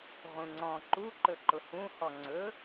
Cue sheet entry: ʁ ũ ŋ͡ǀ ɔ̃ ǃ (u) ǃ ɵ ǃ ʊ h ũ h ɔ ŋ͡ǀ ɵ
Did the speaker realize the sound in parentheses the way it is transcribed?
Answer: yes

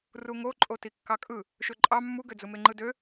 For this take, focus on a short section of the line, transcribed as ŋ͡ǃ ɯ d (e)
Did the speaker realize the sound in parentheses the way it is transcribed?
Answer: no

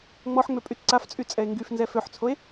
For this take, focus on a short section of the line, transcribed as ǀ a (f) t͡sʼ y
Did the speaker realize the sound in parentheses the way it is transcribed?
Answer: yes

